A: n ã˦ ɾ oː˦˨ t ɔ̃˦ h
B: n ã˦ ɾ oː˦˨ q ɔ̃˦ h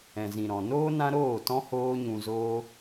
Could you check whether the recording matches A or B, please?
A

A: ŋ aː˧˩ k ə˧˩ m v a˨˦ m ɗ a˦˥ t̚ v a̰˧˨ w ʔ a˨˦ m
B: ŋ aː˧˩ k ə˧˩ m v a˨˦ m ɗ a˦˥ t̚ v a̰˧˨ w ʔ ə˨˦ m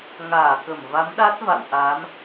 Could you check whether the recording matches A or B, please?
A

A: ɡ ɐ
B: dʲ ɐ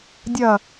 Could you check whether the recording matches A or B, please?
B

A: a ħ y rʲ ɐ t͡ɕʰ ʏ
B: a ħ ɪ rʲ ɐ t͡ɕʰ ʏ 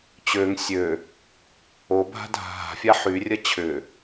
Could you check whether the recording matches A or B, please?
A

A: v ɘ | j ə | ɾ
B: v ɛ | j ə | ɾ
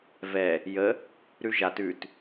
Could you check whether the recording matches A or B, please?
B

